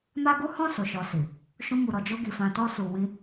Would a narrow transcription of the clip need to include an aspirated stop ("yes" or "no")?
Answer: no